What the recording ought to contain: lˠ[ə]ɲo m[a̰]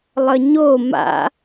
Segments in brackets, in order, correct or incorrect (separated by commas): correct, correct